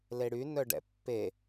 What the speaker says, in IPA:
l e ɽ y n œ ɖ ɛ̰ pː e

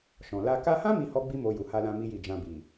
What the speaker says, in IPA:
ʃ ɔ̃˨ l a˧ k a˧ h ã˦ m i˦ h ɔ˦ ɡ͡b i˦ m o˧ j u˨ h a˧ l ã˧ m i˦ j i˦˨ d͡ʒ ã˧ b i˨

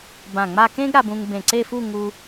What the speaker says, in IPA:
b ã˧˩ ŋ͡m a˥˧ k ẽ˥ ɡ ɾ a˧ b ũ˧ ŋ b ẽ˧˩ ǀ e˥˧ f u˥˧ ŋ u˧

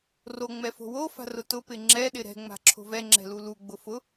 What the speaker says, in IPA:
r o ŋ͡m ɛ f o̤ w o f a̤ r ʊ t ʊ p ɪ ŋ͡ǁ ɛ ɗ ɪ ɾ ɛ̤ ŋ͡m a̤ ǁʰ o̤ v ɛ ŋ͡ǁ ɛ̤ l u l u ɡ͡b ʊ f ʊ

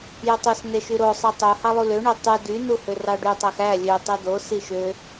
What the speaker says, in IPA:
j ø tˤ ø s n e ʃ y ɾ o sˤ ɯ tˤ u h ɑ lˠ u l ø ɳ ø tˤ y d y n u h ø r ɑ ɖ y tˤ æ x æ lʲ ø tˤ y d o s i ʃ ø

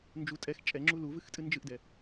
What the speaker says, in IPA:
n d͡ʒ u tʼ ɛ x t͡ʃʼ ɛ ŋ͡ǁ u l u v ɨ x tʼ ɨ n d͡ʒ ɨ ʔ d ɛ

